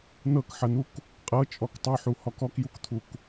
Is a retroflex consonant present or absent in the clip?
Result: absent